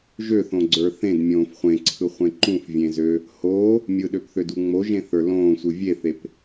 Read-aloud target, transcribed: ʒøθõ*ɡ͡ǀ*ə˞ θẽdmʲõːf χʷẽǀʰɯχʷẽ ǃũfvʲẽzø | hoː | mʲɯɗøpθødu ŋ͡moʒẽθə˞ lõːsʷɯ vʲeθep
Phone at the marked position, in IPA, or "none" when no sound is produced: ɡ͡ǀ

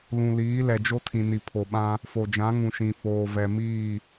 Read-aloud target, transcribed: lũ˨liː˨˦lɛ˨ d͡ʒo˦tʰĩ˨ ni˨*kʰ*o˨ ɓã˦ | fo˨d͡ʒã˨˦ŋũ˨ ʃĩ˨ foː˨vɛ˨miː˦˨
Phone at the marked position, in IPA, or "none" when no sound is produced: pʰ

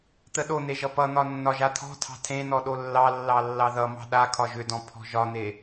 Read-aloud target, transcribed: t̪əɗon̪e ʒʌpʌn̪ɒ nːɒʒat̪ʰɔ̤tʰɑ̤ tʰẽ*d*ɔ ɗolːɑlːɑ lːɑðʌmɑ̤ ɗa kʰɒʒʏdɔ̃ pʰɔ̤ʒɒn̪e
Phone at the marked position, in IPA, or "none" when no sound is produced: n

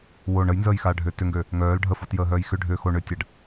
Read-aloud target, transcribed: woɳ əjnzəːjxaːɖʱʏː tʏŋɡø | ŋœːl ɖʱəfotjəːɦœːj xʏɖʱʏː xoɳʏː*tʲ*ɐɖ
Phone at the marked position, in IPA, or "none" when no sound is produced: tʲ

